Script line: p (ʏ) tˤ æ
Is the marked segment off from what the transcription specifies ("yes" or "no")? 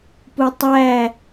yes